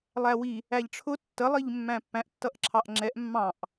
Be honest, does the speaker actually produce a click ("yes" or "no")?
yes